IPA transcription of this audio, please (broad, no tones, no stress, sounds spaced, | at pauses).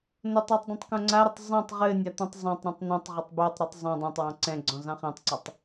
n o tˤ ɔ tˤ dˤ ɛ̃ tˤ k õ ŋ͡ǀ a ɾ ɘ tˤ zˤ ɛ̃ tˤ ʁ ɘ nʲ a t̪ õ tˤ zˤ ɑ̃ tˤ ɾ õ tˤ n̪ ɔ̃ tˤ ʁ ɘ tˤ b o tˤ ɾ ʉ tˤ zˤ õ dˤ ã tˤ w ɑ̃ ǀ ɛ̃ ɡ͡ǀ ɔ̃ z ɑ̃ χ ɛ̃ tˤ ǀ ɑ tˤ